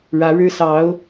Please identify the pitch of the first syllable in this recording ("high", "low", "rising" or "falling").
rising